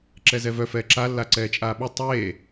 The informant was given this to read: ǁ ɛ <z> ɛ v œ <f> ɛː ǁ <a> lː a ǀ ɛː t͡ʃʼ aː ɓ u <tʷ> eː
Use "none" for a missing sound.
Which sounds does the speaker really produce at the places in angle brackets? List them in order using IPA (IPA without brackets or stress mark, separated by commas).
z, f, a, tˤ